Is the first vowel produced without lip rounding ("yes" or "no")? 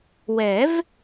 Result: yes